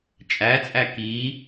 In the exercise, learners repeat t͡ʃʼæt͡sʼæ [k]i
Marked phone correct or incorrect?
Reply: correct